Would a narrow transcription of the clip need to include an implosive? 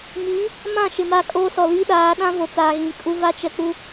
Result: yes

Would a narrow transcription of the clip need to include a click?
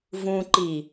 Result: yes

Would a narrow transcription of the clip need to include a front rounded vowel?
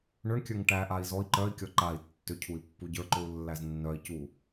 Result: yes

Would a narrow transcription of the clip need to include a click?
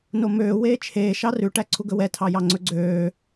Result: yes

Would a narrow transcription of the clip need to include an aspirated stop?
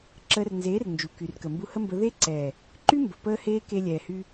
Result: no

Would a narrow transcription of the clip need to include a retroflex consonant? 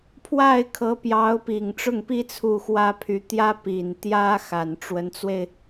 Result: yes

